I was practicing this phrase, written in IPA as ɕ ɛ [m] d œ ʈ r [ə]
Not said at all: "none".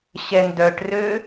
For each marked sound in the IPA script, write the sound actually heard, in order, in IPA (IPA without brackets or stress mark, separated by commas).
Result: n, ø